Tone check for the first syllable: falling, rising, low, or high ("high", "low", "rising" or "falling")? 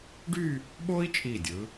falling